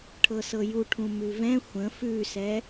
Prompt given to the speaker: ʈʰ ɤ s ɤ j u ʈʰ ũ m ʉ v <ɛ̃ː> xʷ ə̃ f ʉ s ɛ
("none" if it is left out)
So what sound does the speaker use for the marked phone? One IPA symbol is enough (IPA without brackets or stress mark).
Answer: ɛ̃